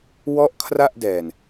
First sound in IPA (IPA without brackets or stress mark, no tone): w